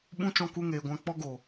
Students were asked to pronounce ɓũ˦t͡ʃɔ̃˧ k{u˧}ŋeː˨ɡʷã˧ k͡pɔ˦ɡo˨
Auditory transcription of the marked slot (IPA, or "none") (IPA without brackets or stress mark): u˧